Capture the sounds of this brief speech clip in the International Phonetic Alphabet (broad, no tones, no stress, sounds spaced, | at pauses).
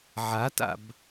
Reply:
ʕ a t a̰ b